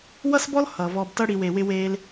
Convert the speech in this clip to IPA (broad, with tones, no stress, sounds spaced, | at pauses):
w ʌ˦ s b ɔ˦ l h ʌː˨ v ɔː˧ b t ʌ˦ ɽ i˨ w e˨ w ɪ˧ w eː˧ l